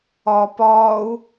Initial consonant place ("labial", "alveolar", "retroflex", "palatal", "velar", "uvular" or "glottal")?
labial